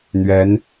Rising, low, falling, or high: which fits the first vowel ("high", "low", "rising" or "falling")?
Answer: rising